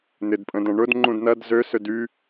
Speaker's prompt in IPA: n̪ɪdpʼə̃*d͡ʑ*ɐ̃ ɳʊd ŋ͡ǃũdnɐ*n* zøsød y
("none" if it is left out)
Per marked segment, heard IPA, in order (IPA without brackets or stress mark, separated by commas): d, d